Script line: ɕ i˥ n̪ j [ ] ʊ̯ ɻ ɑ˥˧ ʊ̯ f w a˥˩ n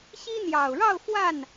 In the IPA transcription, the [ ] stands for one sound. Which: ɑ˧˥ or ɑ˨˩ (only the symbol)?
ɑ˨˩